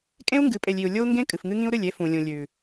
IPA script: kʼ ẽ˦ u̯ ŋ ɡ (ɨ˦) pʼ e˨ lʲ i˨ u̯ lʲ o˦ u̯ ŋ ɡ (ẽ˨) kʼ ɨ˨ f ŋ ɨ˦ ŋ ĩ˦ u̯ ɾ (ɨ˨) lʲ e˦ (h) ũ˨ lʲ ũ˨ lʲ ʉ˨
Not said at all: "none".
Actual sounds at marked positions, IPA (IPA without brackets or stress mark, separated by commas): ɨ˨˦, ẽ˦, ɨ˦˨, f